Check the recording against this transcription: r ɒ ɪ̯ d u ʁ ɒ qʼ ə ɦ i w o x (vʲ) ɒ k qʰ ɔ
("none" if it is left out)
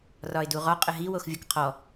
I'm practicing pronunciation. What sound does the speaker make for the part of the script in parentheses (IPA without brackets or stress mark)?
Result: vʲ